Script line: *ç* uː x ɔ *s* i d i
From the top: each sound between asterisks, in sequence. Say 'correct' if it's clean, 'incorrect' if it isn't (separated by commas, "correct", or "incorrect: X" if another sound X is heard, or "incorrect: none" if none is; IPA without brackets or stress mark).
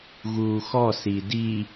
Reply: incorrect: ɣ, correct